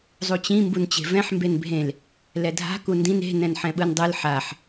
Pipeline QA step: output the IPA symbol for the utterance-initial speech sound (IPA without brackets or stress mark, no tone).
zˤ